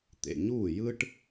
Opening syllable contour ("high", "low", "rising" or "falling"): low